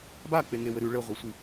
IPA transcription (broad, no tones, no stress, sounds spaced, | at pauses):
b a k͡p e ŋ e w ɘ ɾ ʉ ɭ ɘ ʁʷ ɘ sʷ i